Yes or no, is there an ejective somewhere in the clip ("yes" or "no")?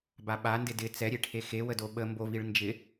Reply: no